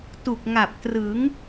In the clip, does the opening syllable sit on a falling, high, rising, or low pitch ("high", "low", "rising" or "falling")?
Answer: low